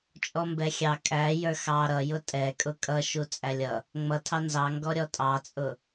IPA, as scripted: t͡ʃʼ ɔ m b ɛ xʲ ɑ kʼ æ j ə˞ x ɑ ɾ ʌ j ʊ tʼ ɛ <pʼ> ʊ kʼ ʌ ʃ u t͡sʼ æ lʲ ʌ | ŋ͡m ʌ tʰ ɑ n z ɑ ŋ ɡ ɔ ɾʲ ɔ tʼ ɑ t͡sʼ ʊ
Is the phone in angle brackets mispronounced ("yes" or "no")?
yes